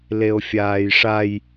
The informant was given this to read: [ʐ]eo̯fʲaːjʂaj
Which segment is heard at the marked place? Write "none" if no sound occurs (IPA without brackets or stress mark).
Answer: l